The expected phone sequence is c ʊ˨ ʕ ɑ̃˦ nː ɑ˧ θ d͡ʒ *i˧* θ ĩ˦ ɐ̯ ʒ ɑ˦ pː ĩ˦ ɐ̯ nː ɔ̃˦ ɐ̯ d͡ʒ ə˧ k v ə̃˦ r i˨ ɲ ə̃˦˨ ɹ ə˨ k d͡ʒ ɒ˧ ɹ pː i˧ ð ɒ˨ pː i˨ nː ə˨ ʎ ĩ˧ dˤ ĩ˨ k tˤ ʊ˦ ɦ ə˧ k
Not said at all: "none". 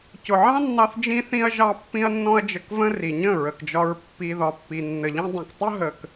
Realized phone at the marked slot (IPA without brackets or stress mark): ĩ˧